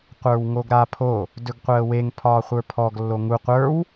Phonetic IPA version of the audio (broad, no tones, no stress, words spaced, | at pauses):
qʷə˞wŋoɡɾapʰo | dɵɡqʷəːweŋ pʰɒːχʷə˞pʰɔɡ lːoŋu qʷə˞w